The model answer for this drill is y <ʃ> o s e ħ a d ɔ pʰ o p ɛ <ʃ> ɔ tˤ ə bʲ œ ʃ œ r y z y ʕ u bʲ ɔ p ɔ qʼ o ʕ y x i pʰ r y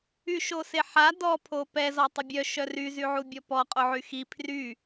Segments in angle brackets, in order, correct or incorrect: correct, incorrect: z

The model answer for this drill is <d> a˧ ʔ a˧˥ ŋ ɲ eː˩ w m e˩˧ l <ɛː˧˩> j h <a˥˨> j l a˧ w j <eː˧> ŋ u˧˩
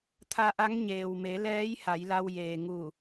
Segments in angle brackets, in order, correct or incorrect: incorrect: t̪ʰ, incorrect: ɛː˧˥, incorrect: a˩˧, incorrect: eː˩

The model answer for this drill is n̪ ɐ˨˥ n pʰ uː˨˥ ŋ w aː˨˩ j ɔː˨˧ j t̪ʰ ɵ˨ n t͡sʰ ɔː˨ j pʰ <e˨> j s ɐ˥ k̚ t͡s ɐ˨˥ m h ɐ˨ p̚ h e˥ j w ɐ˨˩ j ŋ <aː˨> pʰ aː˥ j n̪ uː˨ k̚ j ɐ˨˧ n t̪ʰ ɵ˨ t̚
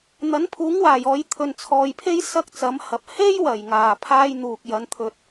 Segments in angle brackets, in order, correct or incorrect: incorrect: e˥, incorrect: aː˨˩

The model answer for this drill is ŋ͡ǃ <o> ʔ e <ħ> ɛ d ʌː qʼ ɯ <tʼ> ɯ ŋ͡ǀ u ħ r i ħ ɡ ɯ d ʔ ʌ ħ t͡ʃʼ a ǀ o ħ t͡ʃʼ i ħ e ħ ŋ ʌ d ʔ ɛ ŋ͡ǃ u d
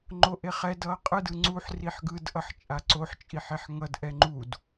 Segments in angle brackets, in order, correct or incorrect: correct, incorrect: χ, incorrect: d

